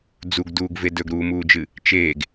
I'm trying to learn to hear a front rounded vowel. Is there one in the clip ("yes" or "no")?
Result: no